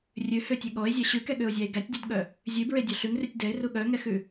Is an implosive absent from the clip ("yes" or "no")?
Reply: no